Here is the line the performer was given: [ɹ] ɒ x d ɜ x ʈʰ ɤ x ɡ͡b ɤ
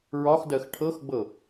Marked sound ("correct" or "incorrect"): correct